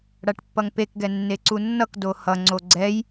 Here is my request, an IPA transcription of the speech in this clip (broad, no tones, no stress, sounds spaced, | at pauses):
ɽ a ʈ pː ʌ ŋ p e k ɡ ɛ nː e ǀ u nː ʌ k d o h ʌ ŋ͡ǀ o ɡ͡ǀ ɛ j